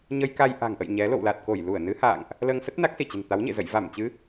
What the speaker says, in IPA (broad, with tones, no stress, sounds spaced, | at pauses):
ɲ ə˧ j k a˧ j ʔ a̤˨˩ ŋ ʔ ə̰˧˨ j ɲ ɛ˨˦ l o̰˧˨ w l a˨˩ t̚ k o˧˩ j l u˧˩ ə̯ n ɨ˨˦ h a̰ː˧˨ ŋ ʔ | l əː˧ ŋ s ə˦˥ t̚ n a˦˥ k̚ s i˧˩ t͡ɕ ə̤˨˩ n t̪ a˨˦ w ɲ ḛ˧˨ z ə̰˧˨ j v a˧˩ m t͡ɕ ɨ˨˦